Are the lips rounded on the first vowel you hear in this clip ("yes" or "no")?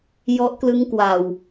yes